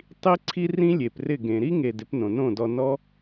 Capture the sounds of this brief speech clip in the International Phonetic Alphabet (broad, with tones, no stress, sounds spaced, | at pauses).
tˤ i˦ ǀʰ i˦ r ĩ˦ lʲ e˨ p r ɪ˦˨ ɡ ẽ˨ ɾ i˦ ŋ e˨ d ɪ˨˦ p n õ˨ n õ˦˨ d ɔ˧ n ɔ˦